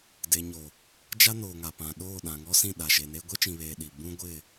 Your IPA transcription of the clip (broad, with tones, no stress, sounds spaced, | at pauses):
d e˨ ɲ o˨ | d͡ʒ a˦ n oː˨ ŋ a˨ p ã˨ ɗ oː˦˨ ɗ ã˨ ŋ ɔ˦ s ĩ˦˨ ɗ a˨ ʃ e˨ n e˦ ɡʷ e˦ t͡ʃ ĩ˨ β eː˨ ɗ i˨ b ũ˦ ɡʷ ɪ˦˨